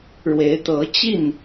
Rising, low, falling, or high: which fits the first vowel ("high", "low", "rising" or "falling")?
rising